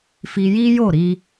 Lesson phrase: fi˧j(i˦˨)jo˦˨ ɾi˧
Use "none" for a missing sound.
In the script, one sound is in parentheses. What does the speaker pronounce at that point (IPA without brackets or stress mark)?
i˦